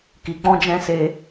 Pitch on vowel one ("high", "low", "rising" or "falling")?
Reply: low